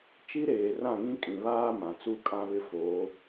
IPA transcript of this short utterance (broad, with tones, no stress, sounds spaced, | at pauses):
t͡ʃ i˦ ɾ eː˨ r ã˦˨ ŋ ĩ˦ kʼ ĩ˨ β aː˦ m ã˨ t͡s u˦ kʼ ã˦ β ɪ˦ f oː˨˦